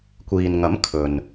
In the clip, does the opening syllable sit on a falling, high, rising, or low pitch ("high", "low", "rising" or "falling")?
low